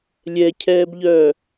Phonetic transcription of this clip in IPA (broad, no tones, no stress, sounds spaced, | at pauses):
lʲ ɛ cʰ ɛː b ʎ œː